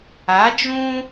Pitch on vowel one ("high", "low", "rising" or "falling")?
rising